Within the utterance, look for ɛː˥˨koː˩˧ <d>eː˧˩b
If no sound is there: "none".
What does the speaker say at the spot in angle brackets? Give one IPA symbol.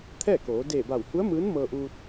d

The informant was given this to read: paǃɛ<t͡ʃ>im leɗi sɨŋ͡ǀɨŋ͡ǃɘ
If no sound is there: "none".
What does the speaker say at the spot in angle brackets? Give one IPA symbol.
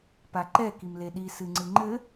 k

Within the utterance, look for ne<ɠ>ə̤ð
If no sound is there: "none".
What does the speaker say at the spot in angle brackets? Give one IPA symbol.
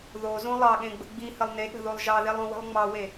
ɠ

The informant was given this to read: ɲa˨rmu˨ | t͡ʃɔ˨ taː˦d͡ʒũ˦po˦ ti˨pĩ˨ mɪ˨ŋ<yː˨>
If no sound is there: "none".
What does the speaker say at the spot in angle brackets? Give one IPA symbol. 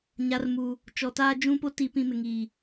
iː˨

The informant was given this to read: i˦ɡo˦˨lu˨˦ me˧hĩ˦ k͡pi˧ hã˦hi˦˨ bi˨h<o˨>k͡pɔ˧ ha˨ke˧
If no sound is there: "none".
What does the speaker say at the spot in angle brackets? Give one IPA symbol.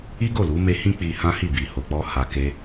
o˨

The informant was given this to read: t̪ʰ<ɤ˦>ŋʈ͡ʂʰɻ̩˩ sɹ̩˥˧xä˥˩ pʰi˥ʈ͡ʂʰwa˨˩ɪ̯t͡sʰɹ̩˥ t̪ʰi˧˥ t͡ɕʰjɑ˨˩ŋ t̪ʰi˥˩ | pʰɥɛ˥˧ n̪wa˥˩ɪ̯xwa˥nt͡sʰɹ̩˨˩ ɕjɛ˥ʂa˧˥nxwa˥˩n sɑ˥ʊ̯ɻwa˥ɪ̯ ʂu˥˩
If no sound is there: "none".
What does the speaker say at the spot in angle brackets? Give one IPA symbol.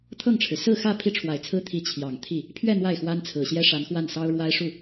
ɤ˥˩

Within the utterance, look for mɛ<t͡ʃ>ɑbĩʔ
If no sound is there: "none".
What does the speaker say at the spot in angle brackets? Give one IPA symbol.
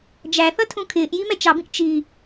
t͡ʃ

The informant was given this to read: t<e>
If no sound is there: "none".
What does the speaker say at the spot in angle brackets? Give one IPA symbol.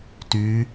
y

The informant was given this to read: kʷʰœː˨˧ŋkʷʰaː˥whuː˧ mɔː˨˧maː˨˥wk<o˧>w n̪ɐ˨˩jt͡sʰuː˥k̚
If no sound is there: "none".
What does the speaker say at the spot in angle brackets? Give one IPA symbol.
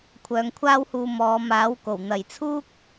o˨˩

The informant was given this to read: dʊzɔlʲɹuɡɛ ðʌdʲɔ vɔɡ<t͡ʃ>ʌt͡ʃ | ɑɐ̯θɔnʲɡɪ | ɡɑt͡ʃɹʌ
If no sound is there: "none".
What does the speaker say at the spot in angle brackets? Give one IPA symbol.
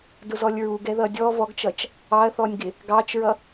t͡ʃ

